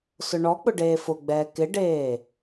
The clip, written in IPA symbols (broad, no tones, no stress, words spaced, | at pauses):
sʊɳɔk͡pʊ ɖeːfʊɡ͡bɛː kɪɖeː